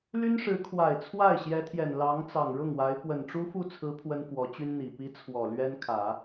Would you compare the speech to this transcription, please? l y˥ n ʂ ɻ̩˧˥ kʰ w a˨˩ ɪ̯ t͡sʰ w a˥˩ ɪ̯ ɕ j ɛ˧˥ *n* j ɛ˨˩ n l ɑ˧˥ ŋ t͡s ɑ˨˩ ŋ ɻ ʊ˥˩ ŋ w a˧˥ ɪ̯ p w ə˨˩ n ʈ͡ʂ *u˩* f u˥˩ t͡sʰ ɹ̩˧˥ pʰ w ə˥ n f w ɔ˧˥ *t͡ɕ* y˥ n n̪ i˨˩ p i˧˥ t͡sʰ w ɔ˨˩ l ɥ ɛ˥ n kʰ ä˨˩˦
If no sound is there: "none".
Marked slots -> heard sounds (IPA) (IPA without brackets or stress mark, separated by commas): t̪ʰ, u˥, t͡ɕ